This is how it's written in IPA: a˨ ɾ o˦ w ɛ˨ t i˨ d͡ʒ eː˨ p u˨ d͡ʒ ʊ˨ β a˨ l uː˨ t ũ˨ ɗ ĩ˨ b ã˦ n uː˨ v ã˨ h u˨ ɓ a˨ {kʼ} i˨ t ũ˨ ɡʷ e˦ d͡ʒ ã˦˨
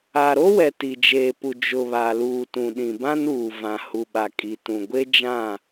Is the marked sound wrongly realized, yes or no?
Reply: no